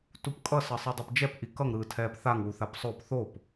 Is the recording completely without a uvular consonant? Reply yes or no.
yes